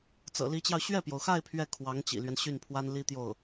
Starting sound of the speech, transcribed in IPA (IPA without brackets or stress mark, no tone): t͡s